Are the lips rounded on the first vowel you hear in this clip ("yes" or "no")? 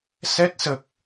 no